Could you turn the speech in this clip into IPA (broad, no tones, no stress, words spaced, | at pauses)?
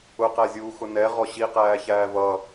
ʊqæzʲuːxʊ nɛʁɔ ɕiqæːçæː vʌ